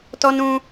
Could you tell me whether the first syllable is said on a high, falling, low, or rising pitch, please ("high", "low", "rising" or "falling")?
high